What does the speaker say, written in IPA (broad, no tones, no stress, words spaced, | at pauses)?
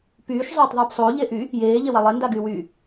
pyːʃ zˤoːtˤðˤyːpsˤoː ʎeʔy | jeː ʎewalˠe ndaɡyːwyː